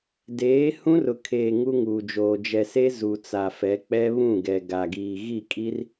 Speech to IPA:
deː˨˦ hũ˦rʊ˨kʰeː˨ ŋu˦ŋuː˨d͡ʒoː˨ d͡ʒɛ˨se˦ zu˨t͡sa˨fɛ˨˦ k͡pɛ˦βũ˦˨ɡɛ˨ ɡa˨ɡiː˨ ɣi˦˨kʼi˦r

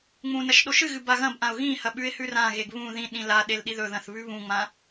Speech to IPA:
ŋ͡mũnɐʃ ɗoʃɨɣɨ baɣɐ̃bʔãʊ̯ ɣĩhɐ ɓʉɪ̯hʉrãɣeɡ βũ ðĩɗĩ la ɗelɗiðɵðɐ̃θ βʉβũŋ͡mã

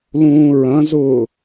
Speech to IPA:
lũːɹɐ̃zʊː

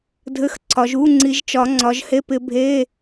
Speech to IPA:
dʱɘ˧˥˧xǀʰɒ˨˦ʒ u˧˥˧ŋ͡ǀi˨˦ʒt͡ʃɒ˨˦ ŋ͡ǀɒ˨˦ʒhe˧˥˧pɪ˨˦bʱe˧˥˧

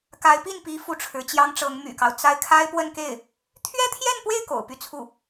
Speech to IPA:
ka˧˥ɪ̯pi˥˩npi˧˥ fu˥˩ʈ͡ʂʰɻ̩˧˥t͡ɕjɑ˥ŋʈ͡ʂɤ˧˥ŋ my̰˨˩kɑ˦ʊ̯ t͡sa˥˩ɪ̯ kʰa˥ɪ̯pwə˥˧nke˥˩ɪ̯ | t̪ʰɥɛ˥t̪ʰjɛ˥˧npwe˥˩ɪ̯ ko̰˨˩ʊ̯py˥˧t͡sʰu˥˩

